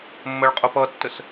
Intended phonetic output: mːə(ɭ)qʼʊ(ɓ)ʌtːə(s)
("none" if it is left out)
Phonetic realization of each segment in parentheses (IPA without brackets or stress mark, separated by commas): ɭ, p, s